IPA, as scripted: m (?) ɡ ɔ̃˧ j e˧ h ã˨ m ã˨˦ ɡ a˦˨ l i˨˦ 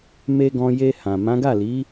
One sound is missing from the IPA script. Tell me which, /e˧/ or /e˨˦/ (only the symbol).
e˧